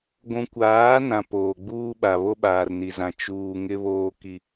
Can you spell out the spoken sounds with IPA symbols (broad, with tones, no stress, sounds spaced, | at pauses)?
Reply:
ɡʷ ũ˨ kʷ aː˨˦ n ã˨ p oː˨ ɡ͡b uː˦ ɓ a˨ β o˦ ɓ aː˨ r n i˨ z ã˨ t͡ʃ uː˦ ŋ ɪ˦ β oː˦ k i˦